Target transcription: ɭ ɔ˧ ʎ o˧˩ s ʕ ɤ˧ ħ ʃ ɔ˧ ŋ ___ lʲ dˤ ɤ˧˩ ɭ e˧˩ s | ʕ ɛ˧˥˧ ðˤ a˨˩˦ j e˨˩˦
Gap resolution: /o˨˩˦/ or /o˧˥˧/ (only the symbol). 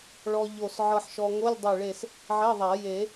o˧˥˧